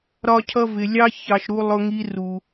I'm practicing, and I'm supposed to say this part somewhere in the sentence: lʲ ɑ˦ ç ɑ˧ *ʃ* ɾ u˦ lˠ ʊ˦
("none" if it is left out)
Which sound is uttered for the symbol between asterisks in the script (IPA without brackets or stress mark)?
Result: ʃ